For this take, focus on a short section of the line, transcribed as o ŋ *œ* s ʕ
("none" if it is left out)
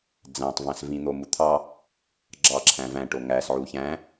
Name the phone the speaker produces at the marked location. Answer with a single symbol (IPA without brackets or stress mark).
æ